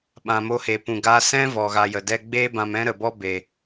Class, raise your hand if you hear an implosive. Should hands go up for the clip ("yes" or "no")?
yes